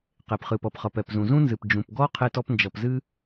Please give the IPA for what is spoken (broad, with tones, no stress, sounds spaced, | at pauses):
q e˩ p χ ɨ˩ p ʌ˩ p χ ʌ˩ p ɛ˩ p z ũ˩ z ũ˥ n z ɨ˩ p d͡ʒ ũ˩ p ɡ ɔ˥ qʰ e˥ t ɔ˥ p n d͡ʒ ʌ˩ p z ɨ˥